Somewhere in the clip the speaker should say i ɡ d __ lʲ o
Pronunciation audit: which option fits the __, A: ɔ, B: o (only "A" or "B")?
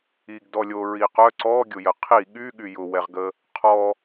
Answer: A